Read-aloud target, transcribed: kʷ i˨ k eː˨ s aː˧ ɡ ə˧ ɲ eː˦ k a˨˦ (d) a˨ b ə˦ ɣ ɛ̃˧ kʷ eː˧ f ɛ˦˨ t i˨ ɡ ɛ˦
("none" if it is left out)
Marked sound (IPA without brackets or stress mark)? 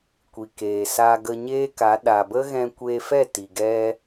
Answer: ɗ